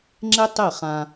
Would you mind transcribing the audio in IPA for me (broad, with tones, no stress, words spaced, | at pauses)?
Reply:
ŋ͡ǁe˦ tˤe˦˨χã˧